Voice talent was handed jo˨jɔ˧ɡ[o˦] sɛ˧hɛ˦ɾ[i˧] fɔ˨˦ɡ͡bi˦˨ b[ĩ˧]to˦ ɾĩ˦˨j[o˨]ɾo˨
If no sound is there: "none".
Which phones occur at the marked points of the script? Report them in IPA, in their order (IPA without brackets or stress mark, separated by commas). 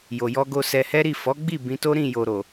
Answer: o˧, i˦˨, ĩ˧, o˨